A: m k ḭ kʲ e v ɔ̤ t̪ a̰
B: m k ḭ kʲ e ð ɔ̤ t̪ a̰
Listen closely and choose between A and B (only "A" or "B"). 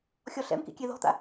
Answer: B